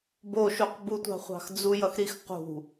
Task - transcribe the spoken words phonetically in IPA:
b o ʃ u q b u tʷ ɑ̤ χʷ ɑ̤ x d͡z u j ʌ x ɾ i x q ṳ

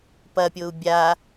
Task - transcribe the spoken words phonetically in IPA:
p ɐ pʲ o u̯ bʲ a

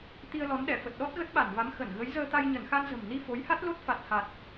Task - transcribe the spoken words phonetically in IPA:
t̪ i˧ ə̯ l ɔ˨˦ n ɗ ɛ˧˩ f ə˨˩ t̚ ɗ ɔ˦˥ t̚ ɣ ə˦˥ t̚ ɓ a˧˩ n v a˨˦ m x ə˧˩ n ɣ ə˨˦ j z əː˧ t̪ a˧ j ɲ ə˧˩ n x a˧ n z ə̤˨˩ m n i˧ f o˨˦ j h a˦˥ t̚ l o˦˥ t̚ f a˨˩ t̚ h a˨˩ t̚

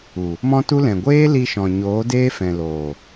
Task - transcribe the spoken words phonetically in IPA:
u˨ | m ɔ̃˦ t u˦ l ɛ̃˨ ɡʷ eː˦ l i˧ ʃ ɔ̃˨ ɲ oː˨˦ d eː˦ f ɛ̃˨ l oː˨

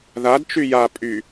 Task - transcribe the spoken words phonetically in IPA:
ð a d t͡ʃ y j a pʼ y

